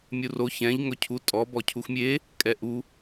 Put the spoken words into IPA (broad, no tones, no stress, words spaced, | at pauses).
mʲuro çɛ̃ʎ ŋɵcʰu tʼɔ bɔcʰuxmʲe | kʼɛʔu